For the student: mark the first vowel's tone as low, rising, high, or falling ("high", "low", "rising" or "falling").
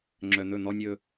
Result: low